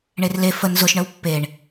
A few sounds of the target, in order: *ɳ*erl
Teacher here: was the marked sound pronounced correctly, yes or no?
yes